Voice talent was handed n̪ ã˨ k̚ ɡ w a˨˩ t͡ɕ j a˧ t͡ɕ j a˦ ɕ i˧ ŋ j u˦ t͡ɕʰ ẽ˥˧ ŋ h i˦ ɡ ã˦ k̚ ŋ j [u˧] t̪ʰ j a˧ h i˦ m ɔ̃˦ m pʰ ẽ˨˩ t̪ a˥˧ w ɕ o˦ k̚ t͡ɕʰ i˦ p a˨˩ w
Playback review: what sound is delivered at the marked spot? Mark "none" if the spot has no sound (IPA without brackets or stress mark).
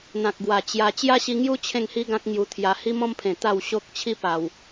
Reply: u˧